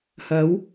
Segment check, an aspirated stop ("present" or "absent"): absent